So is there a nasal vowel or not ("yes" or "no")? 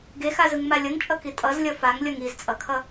no